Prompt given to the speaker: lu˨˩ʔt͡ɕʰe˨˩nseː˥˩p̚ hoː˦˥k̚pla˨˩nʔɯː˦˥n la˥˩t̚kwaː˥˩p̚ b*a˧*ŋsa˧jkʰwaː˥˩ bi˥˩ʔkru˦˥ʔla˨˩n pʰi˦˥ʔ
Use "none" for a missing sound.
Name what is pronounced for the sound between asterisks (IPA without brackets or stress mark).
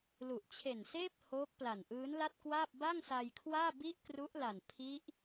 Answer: a˥˩